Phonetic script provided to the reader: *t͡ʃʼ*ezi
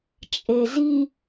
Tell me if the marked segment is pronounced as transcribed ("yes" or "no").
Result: yes